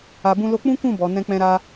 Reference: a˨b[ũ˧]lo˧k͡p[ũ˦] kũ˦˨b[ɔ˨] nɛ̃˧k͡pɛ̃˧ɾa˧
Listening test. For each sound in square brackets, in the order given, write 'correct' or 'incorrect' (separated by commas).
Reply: correct, correct, correct